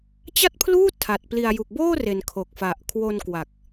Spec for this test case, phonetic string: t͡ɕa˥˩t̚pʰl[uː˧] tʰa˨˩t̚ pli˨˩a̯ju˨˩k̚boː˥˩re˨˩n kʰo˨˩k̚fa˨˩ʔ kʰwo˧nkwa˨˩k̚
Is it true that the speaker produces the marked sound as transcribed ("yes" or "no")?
no